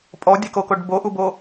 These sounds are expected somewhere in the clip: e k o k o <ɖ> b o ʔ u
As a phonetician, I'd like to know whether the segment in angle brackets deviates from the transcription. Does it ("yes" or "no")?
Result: no